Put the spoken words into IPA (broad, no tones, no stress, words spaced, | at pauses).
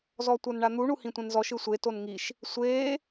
zɔtʷɤnɳan̪u ɳuhĩtʷɛ̃nzɔʃ ɯsʷe tonŋiʃ | sʷeː